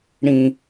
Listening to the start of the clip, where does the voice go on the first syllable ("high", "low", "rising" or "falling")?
high